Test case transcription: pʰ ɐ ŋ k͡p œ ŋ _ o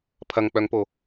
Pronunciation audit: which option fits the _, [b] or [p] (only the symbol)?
p